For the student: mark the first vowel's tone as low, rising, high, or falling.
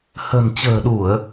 low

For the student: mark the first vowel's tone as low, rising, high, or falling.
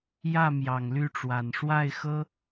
falling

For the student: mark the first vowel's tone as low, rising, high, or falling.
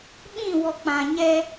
falling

